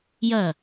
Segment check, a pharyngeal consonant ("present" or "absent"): absent